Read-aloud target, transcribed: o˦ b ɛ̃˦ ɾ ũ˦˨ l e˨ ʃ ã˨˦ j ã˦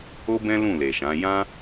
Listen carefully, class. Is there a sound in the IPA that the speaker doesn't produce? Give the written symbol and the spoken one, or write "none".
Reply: ɾ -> l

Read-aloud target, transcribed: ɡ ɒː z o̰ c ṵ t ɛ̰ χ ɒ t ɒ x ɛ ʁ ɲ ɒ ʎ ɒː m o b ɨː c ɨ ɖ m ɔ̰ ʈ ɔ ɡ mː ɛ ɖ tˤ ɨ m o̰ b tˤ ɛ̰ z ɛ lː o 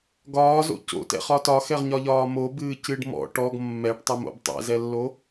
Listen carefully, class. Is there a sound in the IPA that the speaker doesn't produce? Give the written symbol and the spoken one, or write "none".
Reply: ṵ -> o̰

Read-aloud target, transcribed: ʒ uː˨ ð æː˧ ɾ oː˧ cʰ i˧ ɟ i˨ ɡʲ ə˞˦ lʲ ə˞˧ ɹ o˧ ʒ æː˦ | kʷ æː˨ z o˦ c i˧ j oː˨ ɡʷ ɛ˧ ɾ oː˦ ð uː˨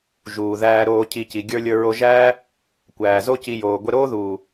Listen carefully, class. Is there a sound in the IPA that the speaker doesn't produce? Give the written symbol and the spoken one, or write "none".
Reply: ɟ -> c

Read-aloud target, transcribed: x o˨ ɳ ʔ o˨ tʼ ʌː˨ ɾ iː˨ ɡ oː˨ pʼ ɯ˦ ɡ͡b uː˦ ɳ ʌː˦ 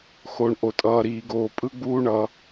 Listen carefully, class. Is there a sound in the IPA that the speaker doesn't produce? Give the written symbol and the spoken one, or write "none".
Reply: none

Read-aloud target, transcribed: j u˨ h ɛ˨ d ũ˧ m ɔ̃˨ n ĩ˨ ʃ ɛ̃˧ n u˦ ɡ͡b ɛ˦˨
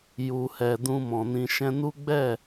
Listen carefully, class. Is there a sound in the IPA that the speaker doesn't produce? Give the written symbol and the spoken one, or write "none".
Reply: none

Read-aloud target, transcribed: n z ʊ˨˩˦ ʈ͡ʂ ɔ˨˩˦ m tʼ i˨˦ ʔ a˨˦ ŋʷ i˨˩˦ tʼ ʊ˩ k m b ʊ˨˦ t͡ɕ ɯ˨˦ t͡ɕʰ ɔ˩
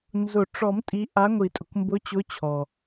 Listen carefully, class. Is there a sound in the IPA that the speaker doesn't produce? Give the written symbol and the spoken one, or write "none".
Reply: ɯ˨˦ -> ʊ˨˦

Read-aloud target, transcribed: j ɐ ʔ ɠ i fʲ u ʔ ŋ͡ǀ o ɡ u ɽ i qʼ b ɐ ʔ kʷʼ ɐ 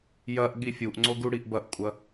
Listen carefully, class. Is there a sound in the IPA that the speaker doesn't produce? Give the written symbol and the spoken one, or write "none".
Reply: qʼ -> ʔ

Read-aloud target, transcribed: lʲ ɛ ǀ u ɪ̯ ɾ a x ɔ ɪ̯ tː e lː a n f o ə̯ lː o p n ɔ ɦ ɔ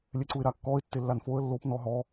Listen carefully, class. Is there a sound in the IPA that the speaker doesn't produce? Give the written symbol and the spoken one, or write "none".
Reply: x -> kː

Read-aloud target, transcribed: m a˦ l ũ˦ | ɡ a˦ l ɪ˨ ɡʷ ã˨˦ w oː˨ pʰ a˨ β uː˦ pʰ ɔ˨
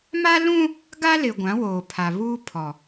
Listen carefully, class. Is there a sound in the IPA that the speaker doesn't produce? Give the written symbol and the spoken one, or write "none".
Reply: none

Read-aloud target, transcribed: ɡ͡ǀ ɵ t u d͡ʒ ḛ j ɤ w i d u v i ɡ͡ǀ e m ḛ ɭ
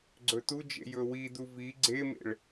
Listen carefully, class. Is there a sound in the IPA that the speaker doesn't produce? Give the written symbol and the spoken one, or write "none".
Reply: ɤ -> ɵ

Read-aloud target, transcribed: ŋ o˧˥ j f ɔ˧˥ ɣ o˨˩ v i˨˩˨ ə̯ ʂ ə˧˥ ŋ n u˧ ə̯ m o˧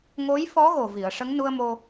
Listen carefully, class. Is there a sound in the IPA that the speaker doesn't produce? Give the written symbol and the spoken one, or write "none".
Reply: none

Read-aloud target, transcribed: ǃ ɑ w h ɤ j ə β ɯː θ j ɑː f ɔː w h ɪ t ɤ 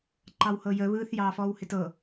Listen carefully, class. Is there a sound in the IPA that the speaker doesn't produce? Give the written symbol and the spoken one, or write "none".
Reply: none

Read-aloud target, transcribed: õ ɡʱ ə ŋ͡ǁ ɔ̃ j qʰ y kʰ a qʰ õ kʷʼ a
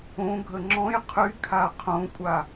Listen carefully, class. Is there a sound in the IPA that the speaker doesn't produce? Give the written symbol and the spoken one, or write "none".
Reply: none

